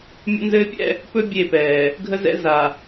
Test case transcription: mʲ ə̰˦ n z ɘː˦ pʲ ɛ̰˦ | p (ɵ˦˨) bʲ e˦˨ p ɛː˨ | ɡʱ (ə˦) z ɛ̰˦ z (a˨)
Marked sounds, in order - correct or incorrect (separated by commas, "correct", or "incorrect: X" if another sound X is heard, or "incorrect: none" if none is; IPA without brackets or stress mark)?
incorrect: ɵ˦, correct, correct